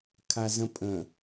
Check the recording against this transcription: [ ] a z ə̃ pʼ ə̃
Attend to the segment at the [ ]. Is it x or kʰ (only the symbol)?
kʰ